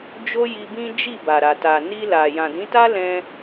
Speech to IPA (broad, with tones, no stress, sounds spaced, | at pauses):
d͡ʒ o˦ j i˧ b ĩ˦ d͡ʒ i˦˨ b a˨ ɾ a˨ t a˨ n i˧ l a˨ j ã˨ d ĩ˨˦ t a˦ l ɛ̃˧